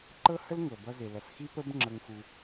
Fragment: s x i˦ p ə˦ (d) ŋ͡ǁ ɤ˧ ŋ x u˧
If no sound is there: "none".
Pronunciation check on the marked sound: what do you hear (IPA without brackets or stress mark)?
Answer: b